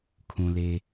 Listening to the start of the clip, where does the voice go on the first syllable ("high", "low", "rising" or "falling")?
low